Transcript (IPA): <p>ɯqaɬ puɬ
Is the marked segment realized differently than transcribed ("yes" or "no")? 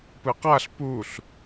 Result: no